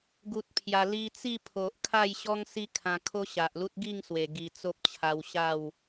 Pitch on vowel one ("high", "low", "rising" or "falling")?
low